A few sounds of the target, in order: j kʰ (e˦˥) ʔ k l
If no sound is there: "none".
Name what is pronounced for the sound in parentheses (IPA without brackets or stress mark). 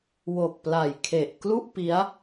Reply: e˨˩